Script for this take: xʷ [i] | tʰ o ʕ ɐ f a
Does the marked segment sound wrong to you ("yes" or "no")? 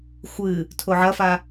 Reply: yes